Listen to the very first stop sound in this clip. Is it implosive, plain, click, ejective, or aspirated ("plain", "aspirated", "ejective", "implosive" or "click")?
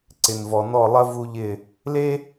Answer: click